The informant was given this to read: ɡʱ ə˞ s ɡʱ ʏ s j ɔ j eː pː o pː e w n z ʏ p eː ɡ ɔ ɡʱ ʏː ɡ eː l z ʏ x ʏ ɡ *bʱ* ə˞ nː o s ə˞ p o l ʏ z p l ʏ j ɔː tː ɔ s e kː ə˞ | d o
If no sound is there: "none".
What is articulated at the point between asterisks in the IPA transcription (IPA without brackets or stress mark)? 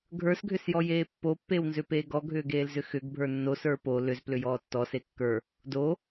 bʱ